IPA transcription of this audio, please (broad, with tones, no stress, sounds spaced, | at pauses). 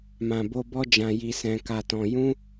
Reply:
m ã˨ b o˧ b ɔ˦ d͡ʒ ã˧ j i˧ s ɛ̃˧ k a˧ t ɔ̃˧ j ũ˦